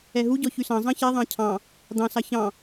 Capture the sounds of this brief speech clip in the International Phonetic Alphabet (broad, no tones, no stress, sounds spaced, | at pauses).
ɛ ɦ u ɟ ɔ ç y s ɑ̃ zˤ ɑ̃ ç ɛ ðˤ ɑ̃ cʰ ɑ̃ | d̪ ɑ̃ s ɑ ç ɑ̃